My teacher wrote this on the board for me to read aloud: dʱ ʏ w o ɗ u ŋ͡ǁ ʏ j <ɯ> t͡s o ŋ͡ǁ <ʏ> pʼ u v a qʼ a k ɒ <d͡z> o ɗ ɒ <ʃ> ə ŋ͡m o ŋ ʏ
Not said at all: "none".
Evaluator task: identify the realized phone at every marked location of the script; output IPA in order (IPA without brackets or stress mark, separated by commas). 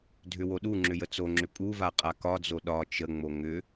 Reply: ə, ʏ, d͡z, t͡ʃ